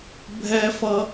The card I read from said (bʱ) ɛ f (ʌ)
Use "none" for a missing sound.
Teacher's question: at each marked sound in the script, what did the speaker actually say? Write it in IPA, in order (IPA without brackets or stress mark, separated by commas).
bʱ, ʌ